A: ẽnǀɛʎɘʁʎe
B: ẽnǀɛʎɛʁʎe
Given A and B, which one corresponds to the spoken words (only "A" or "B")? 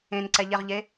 B